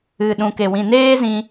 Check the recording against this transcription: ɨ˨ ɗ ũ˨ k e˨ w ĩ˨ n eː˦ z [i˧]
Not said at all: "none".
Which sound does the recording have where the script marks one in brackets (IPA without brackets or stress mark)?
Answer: ĩ˧